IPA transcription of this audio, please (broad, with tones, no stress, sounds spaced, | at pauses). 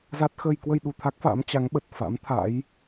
z a˦˥ t̚ x əː˧ j k w ə˧ j ɗ u˨˩ t̪ʰ a˦˥ k̚ f a̰ː˧˥ m t͡ɕ a˨˦ ŋ ɓ ə˨˩ t̚ f a̰˧˥ m t̪ʰ a̰˧˥ j